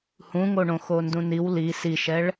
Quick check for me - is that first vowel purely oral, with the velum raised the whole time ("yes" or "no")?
no